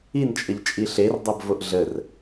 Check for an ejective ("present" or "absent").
present